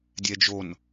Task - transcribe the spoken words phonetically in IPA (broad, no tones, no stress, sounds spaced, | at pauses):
dʲ ɛ d͡ʒ o n